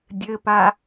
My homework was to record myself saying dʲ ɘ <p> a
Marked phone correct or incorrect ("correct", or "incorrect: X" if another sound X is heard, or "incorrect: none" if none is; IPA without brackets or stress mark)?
correct